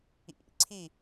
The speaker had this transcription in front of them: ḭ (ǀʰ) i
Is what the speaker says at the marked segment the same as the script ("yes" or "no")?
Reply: yes